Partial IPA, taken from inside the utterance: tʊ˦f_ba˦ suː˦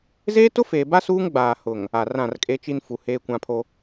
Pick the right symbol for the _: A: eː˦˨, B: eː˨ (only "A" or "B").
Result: B